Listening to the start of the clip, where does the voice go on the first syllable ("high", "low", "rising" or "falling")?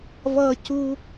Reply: high